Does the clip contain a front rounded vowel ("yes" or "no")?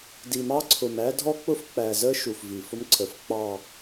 no